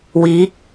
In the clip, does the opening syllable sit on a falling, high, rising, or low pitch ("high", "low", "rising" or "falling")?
rising